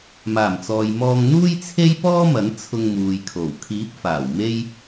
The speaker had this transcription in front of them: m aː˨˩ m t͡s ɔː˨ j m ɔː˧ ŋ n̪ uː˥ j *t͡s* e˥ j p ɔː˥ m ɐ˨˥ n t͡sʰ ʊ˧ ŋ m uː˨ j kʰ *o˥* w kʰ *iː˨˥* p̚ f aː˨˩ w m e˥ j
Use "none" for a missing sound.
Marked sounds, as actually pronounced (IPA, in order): t͡sʰ, o˨˩, iː˨˥

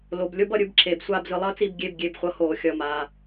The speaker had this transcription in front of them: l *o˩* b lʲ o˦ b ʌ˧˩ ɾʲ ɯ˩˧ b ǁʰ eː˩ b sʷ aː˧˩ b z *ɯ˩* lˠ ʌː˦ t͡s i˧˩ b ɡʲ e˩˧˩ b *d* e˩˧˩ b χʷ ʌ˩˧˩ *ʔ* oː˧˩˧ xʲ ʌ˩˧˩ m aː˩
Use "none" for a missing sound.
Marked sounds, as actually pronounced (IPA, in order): o˩, ɯ˩, ɡʲ, h

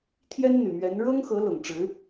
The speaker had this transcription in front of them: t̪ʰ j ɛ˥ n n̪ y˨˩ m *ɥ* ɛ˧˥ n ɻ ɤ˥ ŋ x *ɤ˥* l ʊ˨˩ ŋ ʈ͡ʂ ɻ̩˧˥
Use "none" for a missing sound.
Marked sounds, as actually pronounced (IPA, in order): ɥ, ɤ˧˥

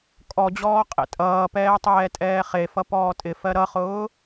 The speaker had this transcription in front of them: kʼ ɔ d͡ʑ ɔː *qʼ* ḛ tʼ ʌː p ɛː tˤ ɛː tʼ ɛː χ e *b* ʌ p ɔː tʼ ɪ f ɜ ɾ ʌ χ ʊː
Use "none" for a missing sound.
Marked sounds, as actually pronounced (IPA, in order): qʼ, f

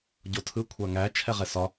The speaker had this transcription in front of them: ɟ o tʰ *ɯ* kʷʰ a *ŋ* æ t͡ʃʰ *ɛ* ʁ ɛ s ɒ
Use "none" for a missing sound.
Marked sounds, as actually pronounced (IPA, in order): ɯ, ŋ, ɛ

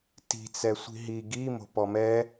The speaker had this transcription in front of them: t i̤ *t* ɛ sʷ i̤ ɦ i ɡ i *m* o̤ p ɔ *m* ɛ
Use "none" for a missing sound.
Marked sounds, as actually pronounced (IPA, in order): t͡s, m, m

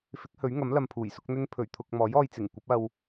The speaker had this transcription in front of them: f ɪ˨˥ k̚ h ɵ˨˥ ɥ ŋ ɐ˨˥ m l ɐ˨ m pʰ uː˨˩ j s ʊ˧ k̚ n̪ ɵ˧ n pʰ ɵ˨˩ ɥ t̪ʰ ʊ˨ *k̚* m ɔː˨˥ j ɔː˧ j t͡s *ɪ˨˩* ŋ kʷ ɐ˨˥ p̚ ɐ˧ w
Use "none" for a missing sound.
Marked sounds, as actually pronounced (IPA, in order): k̚, ɪ˨˩

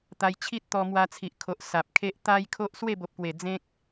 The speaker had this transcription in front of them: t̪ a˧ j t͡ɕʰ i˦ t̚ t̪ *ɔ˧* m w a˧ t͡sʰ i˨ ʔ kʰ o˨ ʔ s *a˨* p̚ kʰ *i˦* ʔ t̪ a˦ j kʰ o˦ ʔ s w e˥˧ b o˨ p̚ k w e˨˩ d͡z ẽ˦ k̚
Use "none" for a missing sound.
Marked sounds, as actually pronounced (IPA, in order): ɔ˧, a˨, e˦

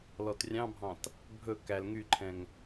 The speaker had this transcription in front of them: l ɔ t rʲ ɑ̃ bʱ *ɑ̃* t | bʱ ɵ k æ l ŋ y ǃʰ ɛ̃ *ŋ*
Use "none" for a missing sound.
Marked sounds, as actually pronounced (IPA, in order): ɑ̃, ŋ

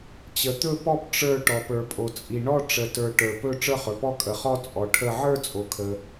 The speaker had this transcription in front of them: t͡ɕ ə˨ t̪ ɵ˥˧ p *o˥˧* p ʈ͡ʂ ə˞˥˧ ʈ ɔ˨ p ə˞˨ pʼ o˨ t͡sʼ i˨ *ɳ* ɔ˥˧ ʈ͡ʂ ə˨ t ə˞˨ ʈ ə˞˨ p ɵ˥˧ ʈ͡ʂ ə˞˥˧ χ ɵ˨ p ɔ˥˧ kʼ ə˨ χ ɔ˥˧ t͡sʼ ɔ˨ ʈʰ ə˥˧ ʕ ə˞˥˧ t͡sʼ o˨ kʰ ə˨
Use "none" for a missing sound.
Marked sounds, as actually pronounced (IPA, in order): ɔ˥˧, ɳ

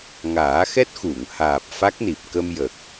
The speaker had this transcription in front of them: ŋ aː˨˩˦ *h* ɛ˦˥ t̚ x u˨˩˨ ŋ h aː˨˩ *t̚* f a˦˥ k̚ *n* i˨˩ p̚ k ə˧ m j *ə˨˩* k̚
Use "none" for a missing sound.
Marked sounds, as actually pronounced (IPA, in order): x, p̚, n, ə˨˩

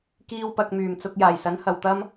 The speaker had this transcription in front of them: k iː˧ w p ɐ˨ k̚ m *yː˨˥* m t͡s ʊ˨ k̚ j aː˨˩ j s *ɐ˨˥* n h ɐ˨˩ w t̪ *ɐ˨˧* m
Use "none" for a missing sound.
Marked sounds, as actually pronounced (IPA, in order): yː˨˩, ɐ˨˥, ɐ˥

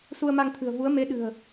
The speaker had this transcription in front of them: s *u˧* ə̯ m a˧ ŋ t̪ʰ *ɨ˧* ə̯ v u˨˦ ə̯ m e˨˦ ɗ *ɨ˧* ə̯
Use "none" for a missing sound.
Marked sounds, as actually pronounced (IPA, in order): u˧, ɨ̤˨˩, ɨ̤˨˩

